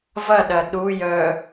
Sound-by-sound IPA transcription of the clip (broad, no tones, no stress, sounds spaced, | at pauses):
v ɐ ɗ ɐ ɗ u j œ